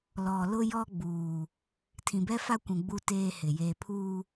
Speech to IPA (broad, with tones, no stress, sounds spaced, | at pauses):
l ɔ˨ l ʊ˦ j ɔ˦ ɡ͡b uː˨ | tʰ ĩ˨ b ɛ˦ f a˦ kʷ ũ˨ ɡ͡b u˦ t eː˦ h ɪ˨ j eː˨ pʰ uː˦